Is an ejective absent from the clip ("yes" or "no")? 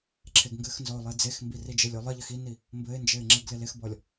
yes